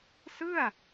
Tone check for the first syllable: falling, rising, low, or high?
falling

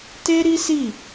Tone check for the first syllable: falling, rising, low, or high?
high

